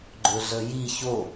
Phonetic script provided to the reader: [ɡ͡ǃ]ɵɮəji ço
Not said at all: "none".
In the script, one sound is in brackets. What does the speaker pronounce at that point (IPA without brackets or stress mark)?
ɡ͡ǃ